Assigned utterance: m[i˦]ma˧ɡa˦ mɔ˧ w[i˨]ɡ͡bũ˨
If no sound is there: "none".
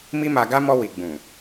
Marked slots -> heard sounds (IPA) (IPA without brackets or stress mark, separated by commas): i˦, i˨